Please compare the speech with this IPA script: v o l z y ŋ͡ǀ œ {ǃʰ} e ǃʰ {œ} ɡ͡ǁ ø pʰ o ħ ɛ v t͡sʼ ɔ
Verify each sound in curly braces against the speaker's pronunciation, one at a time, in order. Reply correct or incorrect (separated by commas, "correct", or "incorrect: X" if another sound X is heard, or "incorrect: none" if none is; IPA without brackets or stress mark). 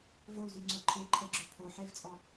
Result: correct, incorrect: ɛ